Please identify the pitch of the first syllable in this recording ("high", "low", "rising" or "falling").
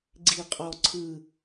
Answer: falling